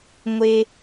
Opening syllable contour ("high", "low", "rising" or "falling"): high